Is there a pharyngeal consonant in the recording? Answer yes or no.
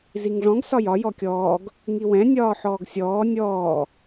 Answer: yes